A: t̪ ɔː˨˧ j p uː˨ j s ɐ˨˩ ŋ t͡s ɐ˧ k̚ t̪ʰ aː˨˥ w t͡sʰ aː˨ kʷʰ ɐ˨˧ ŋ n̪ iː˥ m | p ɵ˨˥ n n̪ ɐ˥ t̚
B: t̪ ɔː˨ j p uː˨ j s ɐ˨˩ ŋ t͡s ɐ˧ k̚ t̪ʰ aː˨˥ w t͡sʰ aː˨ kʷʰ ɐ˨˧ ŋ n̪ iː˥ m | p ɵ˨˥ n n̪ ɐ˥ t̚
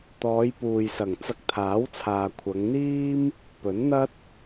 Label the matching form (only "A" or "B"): A